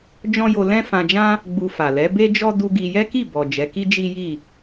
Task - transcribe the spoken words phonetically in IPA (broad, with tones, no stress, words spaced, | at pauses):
d͡ʒɔ̃˦jo˧ lɛ̃˦fã˧d͡ʒã˦ | ɡ͡bu˧fa˨ lɛ˨˦ be˦d͡ʒɔ˦ du˦ɡi˧ jɛ˦ki˦˨ bɔ˨d͡ʒɛ˨˦ki˦ d͡ʒi˦ji˦˨